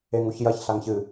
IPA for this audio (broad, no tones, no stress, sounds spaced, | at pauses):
e ŋ u ç j ɐ ç ɬ a ŋ ç ɨ